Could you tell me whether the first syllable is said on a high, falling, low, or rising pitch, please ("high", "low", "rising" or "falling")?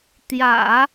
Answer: low